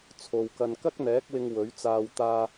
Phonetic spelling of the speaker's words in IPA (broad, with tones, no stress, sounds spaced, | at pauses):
t͡sʰ o˨ w k ɐ˧ n k ɐ˥ k̚ n̪ ɛː˨˥ k̚ w ɪ˧ ŋ w ɵ˨˥ ɥ t͡s aː˧ w t̪ aː˧